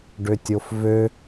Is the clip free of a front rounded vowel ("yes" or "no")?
no